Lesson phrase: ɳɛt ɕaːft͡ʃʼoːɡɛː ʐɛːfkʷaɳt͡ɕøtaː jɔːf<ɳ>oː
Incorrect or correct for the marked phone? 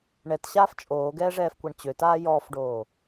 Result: incorrect: ɖ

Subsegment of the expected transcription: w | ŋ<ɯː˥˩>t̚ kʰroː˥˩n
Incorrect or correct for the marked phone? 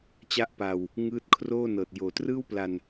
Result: incorrect: ɯː˦˥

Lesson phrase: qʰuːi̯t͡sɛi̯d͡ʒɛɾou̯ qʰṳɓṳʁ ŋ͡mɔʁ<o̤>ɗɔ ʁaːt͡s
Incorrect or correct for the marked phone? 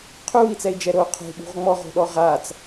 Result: correct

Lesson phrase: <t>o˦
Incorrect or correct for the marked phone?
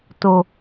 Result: correct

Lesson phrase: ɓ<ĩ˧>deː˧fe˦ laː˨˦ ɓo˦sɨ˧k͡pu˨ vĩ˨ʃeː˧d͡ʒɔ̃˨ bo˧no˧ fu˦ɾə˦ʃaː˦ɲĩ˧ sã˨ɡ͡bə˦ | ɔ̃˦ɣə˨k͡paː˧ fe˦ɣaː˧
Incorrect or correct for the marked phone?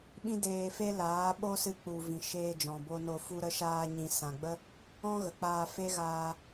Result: incorrect: ĩ˦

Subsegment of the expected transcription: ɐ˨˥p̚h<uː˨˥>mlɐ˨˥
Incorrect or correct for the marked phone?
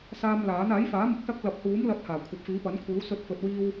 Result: correct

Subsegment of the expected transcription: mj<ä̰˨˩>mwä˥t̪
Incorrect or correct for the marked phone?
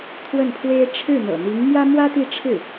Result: incorrect: ä˥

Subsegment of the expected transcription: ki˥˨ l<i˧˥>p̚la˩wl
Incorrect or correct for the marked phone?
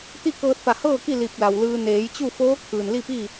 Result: incorrect: i˧˩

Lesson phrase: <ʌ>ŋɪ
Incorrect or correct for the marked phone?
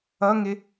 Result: correct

